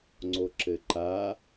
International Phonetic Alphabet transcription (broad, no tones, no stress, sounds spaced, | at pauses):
ŋ͡ǀ o ǁ ɘ ǃ a